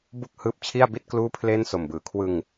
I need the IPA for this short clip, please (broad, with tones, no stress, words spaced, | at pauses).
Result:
bu˥˩k̚ hɯː˦˥p̚t͡ɕʰi˥˩a̯bi˥˩t̚ kluː˥˩pʰle˥˩nso˨˩mbɯː˩˦ kʰwɯ˧ŋ